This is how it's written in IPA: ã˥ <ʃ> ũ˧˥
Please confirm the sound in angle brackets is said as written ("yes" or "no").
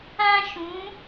yes